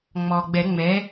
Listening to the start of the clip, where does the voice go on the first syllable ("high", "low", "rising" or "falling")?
low